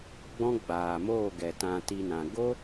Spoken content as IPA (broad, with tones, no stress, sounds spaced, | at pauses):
ɡ͡b ɔ̃˦ ɡ͡b aː˨ m oː˦˨ ɡ ɛ˨ t ã˧ t i˧ n ã˨ ɡ o˦